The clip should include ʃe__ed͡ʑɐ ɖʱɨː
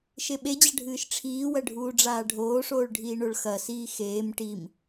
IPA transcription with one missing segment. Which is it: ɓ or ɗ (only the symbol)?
ɓ